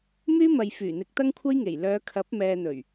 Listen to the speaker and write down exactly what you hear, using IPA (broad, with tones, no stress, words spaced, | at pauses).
myː˥mɐ˨jfyː˨˩n̪ɪ˨˥k̚ t̪ɐ˥ŋkʷʰɐ˥jŋe˨˩j lœː˨˧kʰɐ˨˥p̚ mɛː˨n̪ɵ˨˩ɥ